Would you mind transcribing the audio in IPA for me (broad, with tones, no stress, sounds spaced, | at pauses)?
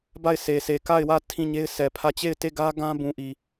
b a˦˨ ɪ̯ s e˨ s e˨ k a˦˨ ɪ̯ w ä˦˨ tʰ ĩ˦˨ ɲ e˦ ɪ̯ sʰ ɛ˨ pʰ ä˦˨ t͡ɕ e˦˨ ɪ̯ t e˦˨ ɡ ä˦ ɡ ã˦ b ũ˨ ʔ i˨